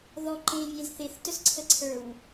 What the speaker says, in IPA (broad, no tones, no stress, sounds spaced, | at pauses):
ð ɔ ǃ ẽ vʲ ẽ z θ e θ t œ s ǀʰ ə ǀʰ ə˞ w